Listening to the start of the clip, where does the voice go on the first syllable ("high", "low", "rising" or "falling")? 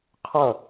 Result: falling